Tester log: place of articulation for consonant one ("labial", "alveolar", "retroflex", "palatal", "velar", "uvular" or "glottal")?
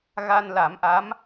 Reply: velar